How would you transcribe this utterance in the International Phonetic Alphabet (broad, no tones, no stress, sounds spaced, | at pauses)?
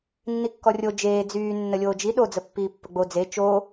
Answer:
nː i kː ɔ rʲ o d͡ʒ eː d͡z yː nː ə lʲ oː d͡ʒ i ɗ o d͡z ə pː iː pː ə ɡ͡b o d͡z e t͡ʃ o